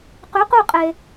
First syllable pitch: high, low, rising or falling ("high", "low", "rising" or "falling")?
rising